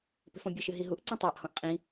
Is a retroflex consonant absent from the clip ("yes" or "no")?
yes